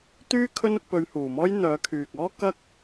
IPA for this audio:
t̪ yː˥ kʰ ɵ˥ n ʊ˧ k̚ p ɵ˨˧ ɥ h uː˨˩ m ɔː˥ j n̪ œː˨˥ kʰ yː˨ k̚ ɔː˥ k ɐ˥ k̚

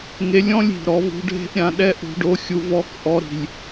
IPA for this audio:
ŋ e˧ lʲ ɔ̃˦ lʲ i̤˨ ɾ ɔ˨˦ v ṳ˧ ɖʱ e̤˦ ʔ ɾʲ ã˧ ɗ ɛ˦ ʔ ṳ˧ ɖ o˧ xʲ u˧ v ɔ˧ k ʔ ɔ˧ ɾ i̤˨ lʲ

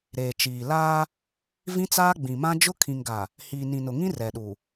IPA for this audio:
ɾ eː˨ t͡ʃ iː˨ l aː˦ | v ĩ˦ t͡s aː˦ ɡ͡b ĩ˨ m ã˦ d͡ʒ ʊ˦ kʰ ĩ˨ ŋ ɡ a˨ | h iː˨ n ĩ˨ n ʊ˨ ŋ ĩ˦ r ɛ˨ ɗ u˨

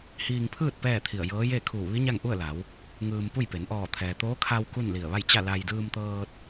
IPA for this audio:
h iː˧ ŋ pʰ ɯː˥˨ t̚ p ɛː˥˨ t̪ʰ i˧˩ ə̯ j ɤː˧˥ j e˥˨ kʰ uː˧˩ ʋ i˧˥ ɲ a˥˨ ŋ ʔ u˥˨ ə̯ l a˩˧ w | ŋ ɯː˧ m p u˥˨ j p e˩˧ n ʔ ɔː˧˩ t̪ʰ ɛː˩ t̪ oː˧˥ kʰ a˧ w k u˥˨ n l i˧˩ ə̯ ʋ a˥˨ j t͡ɕ a˥˨ l a˧ j d ɯː˧ m t̪ ɤː˧ t̚

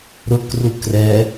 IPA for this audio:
ɾ ʊ k r u k r ɛ

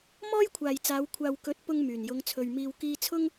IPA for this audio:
m ɔː˥ j kʷʰ aː˨ j t͡s aː˨˧ w kʷʰ aː˨ w k ɵ˨˥ t̚ p ʊ˧ ŋ m yː˨˩ n j ʊ˨˧ ŋ t͡sʰ ɵ˨ ɥ m iː˧ w k iː˧ t͡sʰ ʊ˥ ŋ

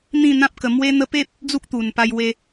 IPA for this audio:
n̪ ĩ˥˧ n̪ ã˦ p̚ k ə˧ m w e˦ n̪ ə˦ p e˦ p̚ | d͡z u˦ k̚ t̪ u˨˩ n p a˧ j w e˧

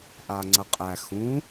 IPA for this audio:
ʔ a ŋ͡ǀ ɐ qʼ æ x ũ

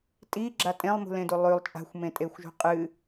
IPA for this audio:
tʼ i ɡ͡ǁ a tʼ ẽ lˠ m ṳ l ẽ d u lˠ ʉ lˠ t͡ʃʼ a̤ xʷ m ẽ tʼ e xʷ ʒ ṳ qʼ ɨ

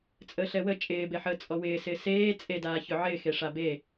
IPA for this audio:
t͡sʼ əː ɬ ɛ w ə t͡ʃʼ ɪː b e ħ əː t͡sʼ ɔ w ɪː s ɪː s eː t͡sʼ e d aː ç ʏ ʕ ɪː x e ʂ a b e

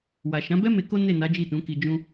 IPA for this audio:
w a˨ ʃ ã˨˦ b ɛ˦ m e˧ k o˦ n e˦˨ n a˨˦ d͡ʒ i˦˨ t ũ˨˦ k i˧ d͡ʒ ũ˦

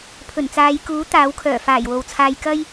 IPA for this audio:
pʰ ɵ˨˩ n t͡s aː˨˧ j k uː˨˥ t̪ aː˨˥ w kʰ œː˨˩ f aː˨˩ j w o˨ w t͡sʰ aː˧ j k ɐ˥ j

